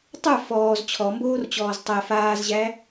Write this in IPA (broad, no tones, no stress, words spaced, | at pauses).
tˤə˞ fɔːz t͡ɕʰɔmboːrt͡ɕɔːz tˤæ faːzʑæ